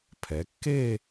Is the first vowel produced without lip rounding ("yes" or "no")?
yes